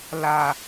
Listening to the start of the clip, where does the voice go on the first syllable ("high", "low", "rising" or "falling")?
low